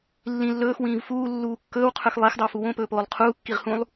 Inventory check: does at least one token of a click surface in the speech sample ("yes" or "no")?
no